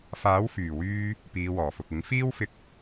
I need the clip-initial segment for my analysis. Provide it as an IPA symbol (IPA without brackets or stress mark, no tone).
f